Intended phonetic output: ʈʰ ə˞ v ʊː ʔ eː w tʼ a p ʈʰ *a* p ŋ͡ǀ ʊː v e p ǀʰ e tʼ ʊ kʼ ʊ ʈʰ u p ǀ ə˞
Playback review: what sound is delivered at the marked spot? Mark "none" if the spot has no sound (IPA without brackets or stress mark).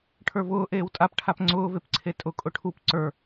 a